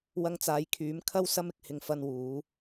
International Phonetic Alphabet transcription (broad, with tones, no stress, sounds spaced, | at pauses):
w ɐ˧ ŋ t͡s aː˨˧ j kʰ yː˨˥ m kʰ ɐ˥ w s ɐ˥ m ɪ˧ k̚ h ɪ˧ ŋ f ɐ˧ n w uː˨˧